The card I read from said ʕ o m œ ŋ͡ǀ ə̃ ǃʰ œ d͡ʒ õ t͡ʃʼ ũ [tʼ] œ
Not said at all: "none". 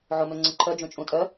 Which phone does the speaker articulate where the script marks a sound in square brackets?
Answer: tʼ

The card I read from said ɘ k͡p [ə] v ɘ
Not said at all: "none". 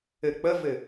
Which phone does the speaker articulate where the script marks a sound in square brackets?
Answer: ə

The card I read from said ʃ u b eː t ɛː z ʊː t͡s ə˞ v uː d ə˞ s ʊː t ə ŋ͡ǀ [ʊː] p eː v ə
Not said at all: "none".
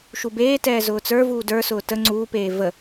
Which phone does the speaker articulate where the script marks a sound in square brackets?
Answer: uː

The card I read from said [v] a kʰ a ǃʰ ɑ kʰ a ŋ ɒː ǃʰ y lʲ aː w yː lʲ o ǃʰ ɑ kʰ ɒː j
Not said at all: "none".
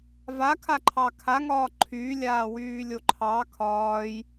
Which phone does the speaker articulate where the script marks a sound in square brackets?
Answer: v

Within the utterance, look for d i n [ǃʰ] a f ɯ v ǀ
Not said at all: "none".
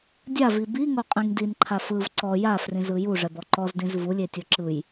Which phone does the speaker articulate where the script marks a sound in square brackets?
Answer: ǃʰ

